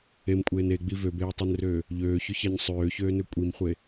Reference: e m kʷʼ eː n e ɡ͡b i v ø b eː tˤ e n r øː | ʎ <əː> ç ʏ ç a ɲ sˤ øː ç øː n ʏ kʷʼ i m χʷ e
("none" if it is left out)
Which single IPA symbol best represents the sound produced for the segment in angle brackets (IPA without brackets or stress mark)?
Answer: øː